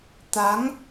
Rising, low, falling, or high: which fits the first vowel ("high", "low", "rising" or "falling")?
rising